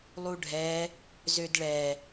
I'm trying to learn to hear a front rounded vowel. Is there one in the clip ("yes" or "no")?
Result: yes